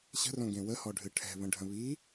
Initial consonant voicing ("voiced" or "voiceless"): voiceless